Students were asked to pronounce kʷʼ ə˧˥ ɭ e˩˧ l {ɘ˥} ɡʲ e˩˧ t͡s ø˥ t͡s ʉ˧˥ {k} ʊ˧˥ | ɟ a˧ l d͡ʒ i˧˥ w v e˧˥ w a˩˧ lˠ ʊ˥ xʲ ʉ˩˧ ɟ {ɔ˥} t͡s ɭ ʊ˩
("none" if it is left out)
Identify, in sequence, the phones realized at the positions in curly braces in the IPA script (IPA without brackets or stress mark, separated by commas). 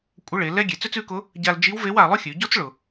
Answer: ɛ˥, k, ɔ˥